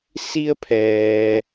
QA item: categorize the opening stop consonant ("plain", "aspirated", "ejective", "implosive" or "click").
aspirated